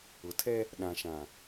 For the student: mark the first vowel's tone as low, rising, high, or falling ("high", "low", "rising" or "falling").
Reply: low